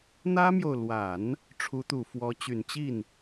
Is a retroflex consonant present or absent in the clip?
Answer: present